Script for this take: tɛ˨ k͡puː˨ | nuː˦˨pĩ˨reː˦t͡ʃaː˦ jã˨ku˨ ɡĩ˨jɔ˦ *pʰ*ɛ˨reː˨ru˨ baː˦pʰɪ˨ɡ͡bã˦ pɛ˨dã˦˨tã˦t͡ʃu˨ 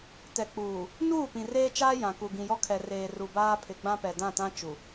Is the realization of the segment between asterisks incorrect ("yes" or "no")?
yes